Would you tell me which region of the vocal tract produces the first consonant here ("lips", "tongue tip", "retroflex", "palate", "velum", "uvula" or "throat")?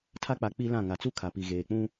tongue tip